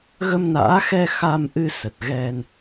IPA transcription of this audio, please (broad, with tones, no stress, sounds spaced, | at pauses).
ɣ ə˧ m n a̰ː˧˥ x ɛ˧ x a˧ m ʔ ɨ˧ s ə˨˩ t̚ ɣ ɛ˧ n